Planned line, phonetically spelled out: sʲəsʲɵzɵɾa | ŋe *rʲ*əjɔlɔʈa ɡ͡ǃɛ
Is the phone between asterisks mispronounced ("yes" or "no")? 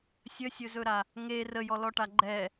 yes